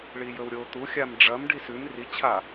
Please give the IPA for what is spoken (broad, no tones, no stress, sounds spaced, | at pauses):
ɭ i j ɵ w ɾʲ o t̪ u xʲ a m ɖ͡ʐ ɐ m ɖ i s ʉ m r i t͡ɕʰ a